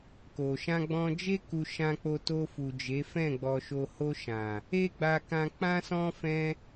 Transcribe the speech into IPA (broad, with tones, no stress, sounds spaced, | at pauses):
k o˨ ʃ ã˧ ɡ͡b ɔ̃˧ d͡ʒ e˦ k u˧ ʃ ã˧ k͡p o˧ t o˧ f u˨ d͡ʒ e˨˦ f ɛ̃˦˨ ɡ͡b ɔ˨ ʃ o˨ h o˧ ʃ ã˨ | e˦ ɡ͡b a˧ k ã˧ k͡p ã˦ s ɔ̃˦ f ɛ̃˦